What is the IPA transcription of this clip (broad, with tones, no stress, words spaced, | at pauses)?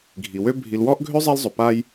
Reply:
ɡʱi˩wø˦ bʱi˨lwɔ˥ʔ ɡʱø˥zˤɛ˦lzˤɵ˩ pa˦j